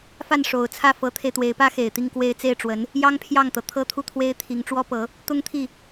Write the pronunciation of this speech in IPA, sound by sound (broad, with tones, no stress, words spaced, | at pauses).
fa˥˩nʂo˨˩ʊ̯t͡sʰä˥˩ fɤ˧˥t̪ʰe˧ɪ̯t̪we˧˥ɪ̯pä˥ xe˨˩ɪ̯t̪i˥˧ŋkwe˥˧ɪ̯ t͡se˥˩ɪ̯ʈ͡ʂwə˧˥n | jɑ˥ŋpʰjɑ˥˩ŋt̪ɤ˩ t̪ʰɤ˥t̪ʰu˥˩t̪ʰwe˥ɪ̯t̪ʰi˧˥ŋ ʈ͡ʂwɔ˥pɤ˧˥ | t̪ʊ˥ŋt̪ʰi˥˩